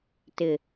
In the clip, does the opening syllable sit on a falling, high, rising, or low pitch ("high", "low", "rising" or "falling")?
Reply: low